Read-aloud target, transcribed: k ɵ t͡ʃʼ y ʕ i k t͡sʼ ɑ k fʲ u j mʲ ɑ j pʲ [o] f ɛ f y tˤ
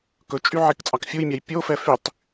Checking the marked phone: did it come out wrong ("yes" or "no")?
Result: no